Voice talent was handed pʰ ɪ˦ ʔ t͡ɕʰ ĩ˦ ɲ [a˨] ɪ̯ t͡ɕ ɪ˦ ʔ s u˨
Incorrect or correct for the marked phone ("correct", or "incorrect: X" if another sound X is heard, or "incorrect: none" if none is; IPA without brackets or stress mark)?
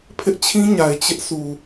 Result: correct